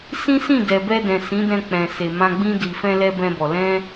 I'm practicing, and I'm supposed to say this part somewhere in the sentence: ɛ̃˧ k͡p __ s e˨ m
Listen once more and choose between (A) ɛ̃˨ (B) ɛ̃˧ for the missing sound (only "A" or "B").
A